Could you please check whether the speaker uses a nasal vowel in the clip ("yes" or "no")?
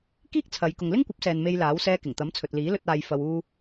no